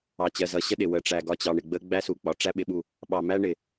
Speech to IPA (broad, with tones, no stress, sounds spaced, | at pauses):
ɑ˨ t͡ɕ ɜ˨ z ʌ˨ ɕ ə˦ ɗ ɪ˨ w ə˨ ʈ͡ʂ æ˨ ɡ ɒ˨ t͡ɕ ɑ˨ ɳ ɪ˨ ɡ͡b ə˦ ɡ͡b æ˦ s u˨ k͡p ɒ˨ ʈ͡ʂ æ˦ ɓ ɪ˨˦ ɓ u˨ | ɓ ɑ˨ m æ˦ ɳ ɪ˨